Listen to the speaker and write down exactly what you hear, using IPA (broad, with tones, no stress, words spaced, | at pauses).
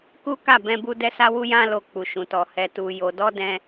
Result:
ku˦ka˦˨ bɛ̃˧bu˧ dɛ˧sa˧wu˧ jã˧ lo˧k͡pu˨ʃũ˨tɔ˨ hɛ˨tu˨ jo˨dɔ˧ dɛ̃˧